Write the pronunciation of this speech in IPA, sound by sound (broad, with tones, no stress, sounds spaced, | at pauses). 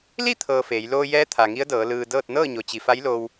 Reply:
l i˥˨ t̪ʰ ɤː˧ f eː˩˧ j l oː˧ j ɛː˧˥ t̪ʰ a˩ ŋ i˧˥ ə̯ d ɤː˩˧ l ɯː˩ d ɤː˥˨ t̚ n ɤː˥˨ ɲ o˩ t͡ɕ i˩ f a˧˥ j l o˧ w